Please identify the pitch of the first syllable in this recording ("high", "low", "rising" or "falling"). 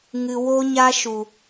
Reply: low